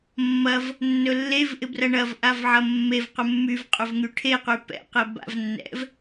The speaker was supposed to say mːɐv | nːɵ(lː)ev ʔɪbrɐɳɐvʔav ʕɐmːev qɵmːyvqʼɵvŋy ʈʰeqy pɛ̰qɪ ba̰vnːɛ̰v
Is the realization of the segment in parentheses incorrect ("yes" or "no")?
no